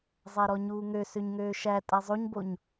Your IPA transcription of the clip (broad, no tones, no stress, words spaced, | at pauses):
zˤæɾɔɲuːŋø søɲŋøːʃæ tʼæzˤoɲboɲ